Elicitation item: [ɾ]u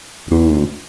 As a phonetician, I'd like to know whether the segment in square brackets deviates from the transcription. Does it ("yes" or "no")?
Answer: no